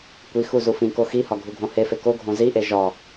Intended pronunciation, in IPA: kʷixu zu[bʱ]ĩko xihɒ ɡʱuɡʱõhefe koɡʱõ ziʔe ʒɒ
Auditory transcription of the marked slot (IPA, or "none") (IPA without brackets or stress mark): f